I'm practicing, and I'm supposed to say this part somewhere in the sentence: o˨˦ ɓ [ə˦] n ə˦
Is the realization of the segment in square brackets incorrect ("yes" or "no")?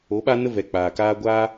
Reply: yes